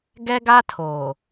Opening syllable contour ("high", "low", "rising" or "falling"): high